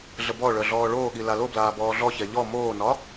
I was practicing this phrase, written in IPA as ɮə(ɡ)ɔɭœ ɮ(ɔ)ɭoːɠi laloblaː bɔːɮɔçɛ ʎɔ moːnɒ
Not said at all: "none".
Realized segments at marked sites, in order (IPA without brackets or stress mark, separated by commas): b, ɔː